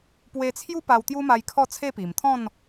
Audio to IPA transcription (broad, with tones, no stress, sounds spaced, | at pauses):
p w e˧ t͡sʰ j u˦ p a˧ w t̪ j u˦ m a˧ j kʰ ɔ˥˧ t͡sʰ e˥˧ p i˨˩ m t̪ʰ ɔ̃˥˧ n